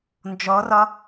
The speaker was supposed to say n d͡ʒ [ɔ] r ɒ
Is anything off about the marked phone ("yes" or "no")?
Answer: no